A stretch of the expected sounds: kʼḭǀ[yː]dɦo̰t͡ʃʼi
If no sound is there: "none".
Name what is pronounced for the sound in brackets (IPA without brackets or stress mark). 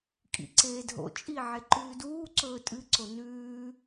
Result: eː